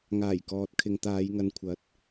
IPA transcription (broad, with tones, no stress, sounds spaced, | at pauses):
ŋ aː˨˩ j k ɔː˨ t̚ kʰ ɪ˨ ŋ t̪ aː˨˧ j ŋ ɐ˨ n kʷʰ ɐ˨˥ t̚